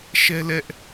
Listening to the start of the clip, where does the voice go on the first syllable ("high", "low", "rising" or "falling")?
high